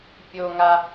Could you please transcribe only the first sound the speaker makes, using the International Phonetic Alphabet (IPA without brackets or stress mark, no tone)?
pʲ